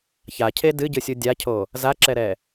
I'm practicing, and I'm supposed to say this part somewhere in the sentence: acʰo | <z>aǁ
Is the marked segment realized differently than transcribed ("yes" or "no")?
no